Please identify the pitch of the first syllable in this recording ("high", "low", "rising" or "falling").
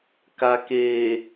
low